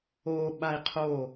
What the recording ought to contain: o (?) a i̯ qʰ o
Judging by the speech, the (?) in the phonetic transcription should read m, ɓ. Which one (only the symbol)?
ɓ